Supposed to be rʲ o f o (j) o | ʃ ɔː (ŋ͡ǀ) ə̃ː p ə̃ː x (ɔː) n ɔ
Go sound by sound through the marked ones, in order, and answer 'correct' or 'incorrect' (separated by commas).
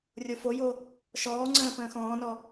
correct, correct, incorrect